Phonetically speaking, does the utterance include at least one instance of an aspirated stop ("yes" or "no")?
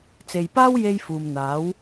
no